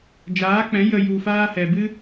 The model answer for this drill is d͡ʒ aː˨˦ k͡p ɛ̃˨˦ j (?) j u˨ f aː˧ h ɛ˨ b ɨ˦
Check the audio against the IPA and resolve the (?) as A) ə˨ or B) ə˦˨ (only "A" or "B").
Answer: A